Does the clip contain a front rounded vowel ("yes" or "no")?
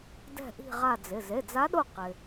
no